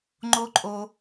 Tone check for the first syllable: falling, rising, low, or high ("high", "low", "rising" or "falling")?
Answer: high